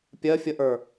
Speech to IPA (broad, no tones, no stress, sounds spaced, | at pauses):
pʲ ɜ fʲ ə ʔ ə˞